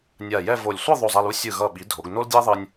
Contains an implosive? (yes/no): yes